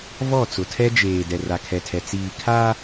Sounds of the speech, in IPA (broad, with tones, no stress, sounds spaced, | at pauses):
v ɔ˦˨ t͡s ʊ˨ tʰ ɛ˦ d͡ʒ eː˨ d ɛ˨ r a˨ kʰ ɛ˨ tʰ ɛ˨ t͡s iː˨ kʰ a˦